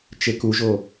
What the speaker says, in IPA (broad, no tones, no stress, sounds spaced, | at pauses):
t͡ʃ e k u ʒ o